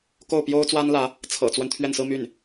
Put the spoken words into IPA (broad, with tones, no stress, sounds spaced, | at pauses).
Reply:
k o˥˩ ʊ̯ p j o˥ ʊ̯ t͡s w a˥ n l ä˧˥ | t͡sʰ ɤ̰˨˩ t͡s w ə˦ n t̪ʰ ɥ ɛ˥˩ n s ɹ̩˥ m y˥˩ n